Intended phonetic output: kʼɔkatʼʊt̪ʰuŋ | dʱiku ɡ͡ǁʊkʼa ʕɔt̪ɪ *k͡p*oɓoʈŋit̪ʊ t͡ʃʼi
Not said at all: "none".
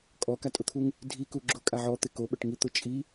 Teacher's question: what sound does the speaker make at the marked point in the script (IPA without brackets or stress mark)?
k